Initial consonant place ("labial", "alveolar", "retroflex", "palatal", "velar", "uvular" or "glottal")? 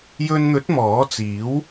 palatal